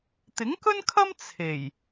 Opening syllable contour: rising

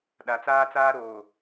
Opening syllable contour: low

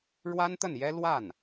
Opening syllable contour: high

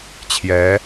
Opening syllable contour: rising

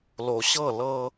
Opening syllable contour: low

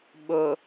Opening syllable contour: low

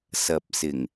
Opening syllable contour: low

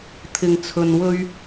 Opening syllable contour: low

